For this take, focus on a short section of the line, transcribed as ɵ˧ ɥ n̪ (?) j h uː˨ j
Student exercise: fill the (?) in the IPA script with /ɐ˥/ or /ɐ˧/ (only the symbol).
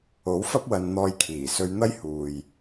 ɐ˥